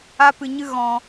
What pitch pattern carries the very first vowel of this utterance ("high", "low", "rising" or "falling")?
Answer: high